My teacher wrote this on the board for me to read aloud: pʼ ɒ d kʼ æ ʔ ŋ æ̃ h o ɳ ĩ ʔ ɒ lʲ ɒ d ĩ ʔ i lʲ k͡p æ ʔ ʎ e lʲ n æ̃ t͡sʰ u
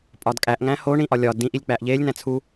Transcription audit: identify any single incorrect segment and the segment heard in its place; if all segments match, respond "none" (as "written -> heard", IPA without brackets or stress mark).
none